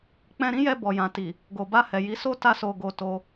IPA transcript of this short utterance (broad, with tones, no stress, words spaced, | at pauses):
k͡pɛ̃˧ɾĩ˦jɛ˧ bɔ˨jã˨ ti˨ | ɡo˨ba˧hɛ˨ji˨˦ so˦ ta˦so˧ ɡo˧to˧